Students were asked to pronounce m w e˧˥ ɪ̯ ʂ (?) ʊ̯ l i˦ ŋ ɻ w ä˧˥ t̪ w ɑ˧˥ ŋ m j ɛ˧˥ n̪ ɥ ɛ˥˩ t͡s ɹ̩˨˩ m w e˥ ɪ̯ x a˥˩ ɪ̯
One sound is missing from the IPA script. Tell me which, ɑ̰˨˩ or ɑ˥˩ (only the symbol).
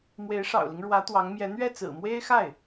ɑ̰˨˩